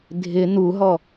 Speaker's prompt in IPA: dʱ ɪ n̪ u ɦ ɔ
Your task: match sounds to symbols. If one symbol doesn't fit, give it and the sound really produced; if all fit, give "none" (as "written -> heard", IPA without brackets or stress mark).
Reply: none